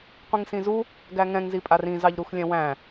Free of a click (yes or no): yes